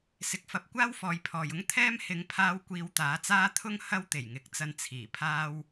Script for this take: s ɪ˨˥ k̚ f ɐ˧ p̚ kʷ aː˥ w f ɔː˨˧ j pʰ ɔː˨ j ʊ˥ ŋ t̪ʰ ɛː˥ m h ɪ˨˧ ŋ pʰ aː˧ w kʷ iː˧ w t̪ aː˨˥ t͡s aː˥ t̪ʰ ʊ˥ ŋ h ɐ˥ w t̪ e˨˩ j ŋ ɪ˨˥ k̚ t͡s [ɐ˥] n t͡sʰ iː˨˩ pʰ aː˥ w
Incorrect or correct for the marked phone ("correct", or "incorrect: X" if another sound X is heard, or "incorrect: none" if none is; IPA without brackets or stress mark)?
incorrect: ɐ˧